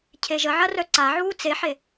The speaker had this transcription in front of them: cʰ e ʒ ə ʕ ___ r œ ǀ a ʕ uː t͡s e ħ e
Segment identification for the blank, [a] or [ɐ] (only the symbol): ɐ